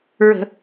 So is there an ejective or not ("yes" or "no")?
no